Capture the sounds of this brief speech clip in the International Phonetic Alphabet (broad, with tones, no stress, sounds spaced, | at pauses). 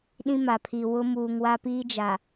ɗ ĩ˦ m a˨ pʰ i˨ w ʊ˦ m uː˨ ŋ w a˦ p iː˦ d͡ʒ a˨